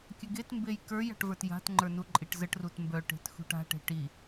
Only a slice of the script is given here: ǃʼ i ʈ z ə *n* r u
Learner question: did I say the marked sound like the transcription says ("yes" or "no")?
no